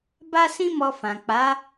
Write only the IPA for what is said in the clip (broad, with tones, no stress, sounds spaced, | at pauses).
b a˦ s ĩ˦ m ɔ˧ f ã˨ k͡p a˨˦